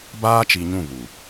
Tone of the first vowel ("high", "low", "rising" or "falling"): high